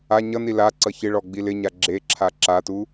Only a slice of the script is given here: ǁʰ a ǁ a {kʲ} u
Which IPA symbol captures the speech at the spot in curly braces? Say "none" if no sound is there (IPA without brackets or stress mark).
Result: t